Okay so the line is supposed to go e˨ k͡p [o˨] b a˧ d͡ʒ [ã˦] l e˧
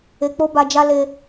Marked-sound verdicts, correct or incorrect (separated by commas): incorrect, incorrect